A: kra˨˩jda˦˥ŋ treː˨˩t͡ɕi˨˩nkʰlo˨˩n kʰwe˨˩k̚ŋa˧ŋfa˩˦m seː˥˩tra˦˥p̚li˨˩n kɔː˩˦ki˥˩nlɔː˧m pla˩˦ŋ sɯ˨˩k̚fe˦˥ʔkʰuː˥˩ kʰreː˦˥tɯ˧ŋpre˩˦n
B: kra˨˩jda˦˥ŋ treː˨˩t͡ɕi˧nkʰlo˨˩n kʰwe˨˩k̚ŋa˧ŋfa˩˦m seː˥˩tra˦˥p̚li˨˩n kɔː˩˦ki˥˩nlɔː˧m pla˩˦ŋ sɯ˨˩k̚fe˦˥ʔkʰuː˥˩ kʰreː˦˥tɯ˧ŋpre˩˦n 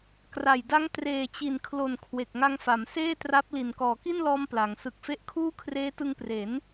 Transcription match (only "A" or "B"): A